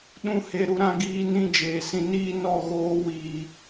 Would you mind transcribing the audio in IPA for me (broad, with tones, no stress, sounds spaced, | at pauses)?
ɗ ũ˦˨ h e˧ ɾ u˦ ɾ ã˦ ɡ iː˦ n ĩ˦ d͡ʒ eː˨ s ĩ˧ n iː˦ n ɔ˦˨ ɣ oː˧ w iː˨